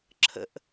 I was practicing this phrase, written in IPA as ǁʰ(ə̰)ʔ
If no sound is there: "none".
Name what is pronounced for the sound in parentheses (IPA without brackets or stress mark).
ə̰